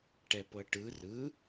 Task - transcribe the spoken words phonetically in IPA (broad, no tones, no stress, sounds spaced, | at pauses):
ʈ ɛ p ɤ ʈ ɯ r ɯ